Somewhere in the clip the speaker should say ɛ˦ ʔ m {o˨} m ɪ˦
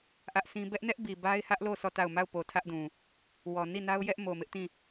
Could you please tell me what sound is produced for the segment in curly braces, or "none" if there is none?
o˨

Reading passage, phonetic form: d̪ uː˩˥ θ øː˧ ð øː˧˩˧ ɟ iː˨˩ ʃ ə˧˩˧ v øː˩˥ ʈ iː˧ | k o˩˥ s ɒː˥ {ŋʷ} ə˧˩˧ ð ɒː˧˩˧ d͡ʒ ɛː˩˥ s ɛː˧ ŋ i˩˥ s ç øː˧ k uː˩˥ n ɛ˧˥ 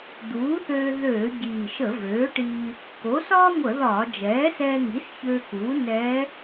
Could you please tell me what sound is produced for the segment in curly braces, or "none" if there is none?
ŋʷ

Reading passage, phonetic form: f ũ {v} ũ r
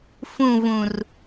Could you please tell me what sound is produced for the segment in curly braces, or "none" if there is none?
v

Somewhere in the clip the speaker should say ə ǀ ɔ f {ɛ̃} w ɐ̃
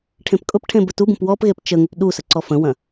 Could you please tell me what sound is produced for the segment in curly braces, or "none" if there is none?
ə̃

